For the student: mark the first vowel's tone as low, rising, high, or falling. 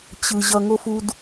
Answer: low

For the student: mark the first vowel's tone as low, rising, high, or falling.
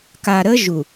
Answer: low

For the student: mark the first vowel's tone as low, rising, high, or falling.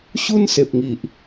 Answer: high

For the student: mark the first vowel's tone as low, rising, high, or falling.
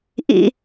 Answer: low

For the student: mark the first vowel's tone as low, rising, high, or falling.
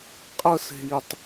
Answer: high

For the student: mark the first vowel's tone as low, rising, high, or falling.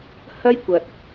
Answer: high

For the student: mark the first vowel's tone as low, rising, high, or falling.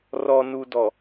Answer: low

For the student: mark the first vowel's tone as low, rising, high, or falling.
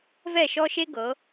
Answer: falling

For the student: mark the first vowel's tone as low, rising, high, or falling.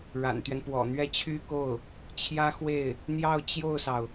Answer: low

